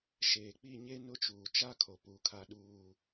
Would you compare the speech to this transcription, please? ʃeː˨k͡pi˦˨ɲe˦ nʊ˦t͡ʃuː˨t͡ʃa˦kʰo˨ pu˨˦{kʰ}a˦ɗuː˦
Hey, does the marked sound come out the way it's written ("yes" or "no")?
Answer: yes